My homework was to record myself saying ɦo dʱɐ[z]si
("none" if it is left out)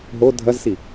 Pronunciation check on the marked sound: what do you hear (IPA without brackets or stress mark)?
z